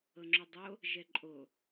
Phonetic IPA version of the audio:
ɤ ŋ͡ǁ o dˤ o | ʒ ɛ ǃʼ o

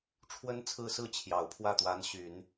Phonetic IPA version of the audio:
ʈ͡ʂʰ w ə˥ n t͡sʰ ɹ̩˥˧ s ɹ̩˥˩ t͡ɕʰ j ɑ˨˩ ʊ̯ pʰ w ä˥˩ t̪ w a˧˥ n ɕ y˨˩˦ n

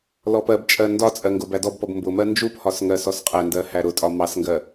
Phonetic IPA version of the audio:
l ɔ p ɜ b t͡ʃʼ ɜ n d ɒ t͡sʼ ɜ ŋ ɡ ʊ b æ d ɔ b p ɔ b m b ʊ m ɜ n d͡ʒ u p h ɒ s ŋ ɜ s ɔ s qʼ æ n d ɜ h æ ɾ ʊ tʼ ɒ m ɑ s ŋ ɡ ɜ

